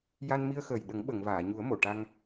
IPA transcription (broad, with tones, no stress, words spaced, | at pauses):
ja˧nmi˧ə̯xəː˨˩j ɗə˨˩˦ŋɓə˨˩˨ŋ vaː˨˩˨ɲu˨˩˦ə̯ mo˨˩˨ʈa˧ŋ